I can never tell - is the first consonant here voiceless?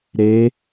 no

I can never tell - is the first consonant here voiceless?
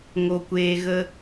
no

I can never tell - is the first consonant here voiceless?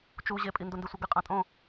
yes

